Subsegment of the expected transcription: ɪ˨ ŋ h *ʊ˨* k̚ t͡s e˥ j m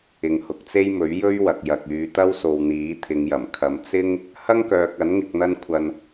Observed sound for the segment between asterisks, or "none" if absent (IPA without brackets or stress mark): ʊ˨